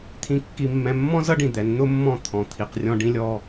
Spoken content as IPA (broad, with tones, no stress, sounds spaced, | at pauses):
t̪ʰ ĩ˨ kː i˨ mː ɛ̃˨ mː ɔ̃˦ z ʌ˦ ɖ ĩ˨ d̪ ɛ˨˦ n n̪ ʊ˦ mː ɔ̃˦˨ t̪ʰ ɔ̃˨ t̪ʰ i˨ q rʲ ɔ̃˦ ɖ ĩ˦ lʲ ɔ˦